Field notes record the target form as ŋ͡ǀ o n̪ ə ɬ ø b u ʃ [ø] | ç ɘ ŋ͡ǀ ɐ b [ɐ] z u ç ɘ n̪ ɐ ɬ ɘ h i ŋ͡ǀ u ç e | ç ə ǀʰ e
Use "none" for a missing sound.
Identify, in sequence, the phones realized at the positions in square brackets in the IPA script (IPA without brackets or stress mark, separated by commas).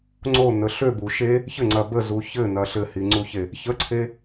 e, ə